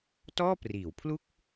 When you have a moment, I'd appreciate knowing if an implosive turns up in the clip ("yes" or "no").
no